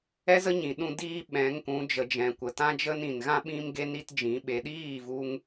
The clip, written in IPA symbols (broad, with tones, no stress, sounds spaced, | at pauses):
ɛ˦ z ə˦ ɲ ĩ˨ ɗ ũ˧ d iː˦ ɓ ɛ̃˨˦ ŋ k ũ˨˦ d͡ʒ ə˨ d͡ʒ ɛ̃˨ kʷ ə˨ t ã˧ d͡ʒ ə˧ n ĩ˨ n ɣ ã˦ ɓ ĩ˦ m ɡ e˦ n i˦ t d͡ʒ ĩ˨˦ ɓ e˨ ɗ iː˦˨ v u˧ ŋ